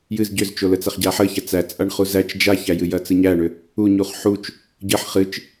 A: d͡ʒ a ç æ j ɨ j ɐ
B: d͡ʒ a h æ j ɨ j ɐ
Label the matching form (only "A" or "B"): A